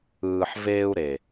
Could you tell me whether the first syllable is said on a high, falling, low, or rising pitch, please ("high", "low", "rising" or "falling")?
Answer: low